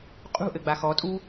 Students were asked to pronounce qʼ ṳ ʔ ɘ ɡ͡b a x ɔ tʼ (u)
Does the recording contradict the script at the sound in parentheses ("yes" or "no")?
no